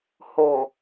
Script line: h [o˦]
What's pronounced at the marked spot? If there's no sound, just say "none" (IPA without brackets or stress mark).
o˨